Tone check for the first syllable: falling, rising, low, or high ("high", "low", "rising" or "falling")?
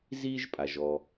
high